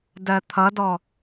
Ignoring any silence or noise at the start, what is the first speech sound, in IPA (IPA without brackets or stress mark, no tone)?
d